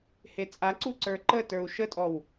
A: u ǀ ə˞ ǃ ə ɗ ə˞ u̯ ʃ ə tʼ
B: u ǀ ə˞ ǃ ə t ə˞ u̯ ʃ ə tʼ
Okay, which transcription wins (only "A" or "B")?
B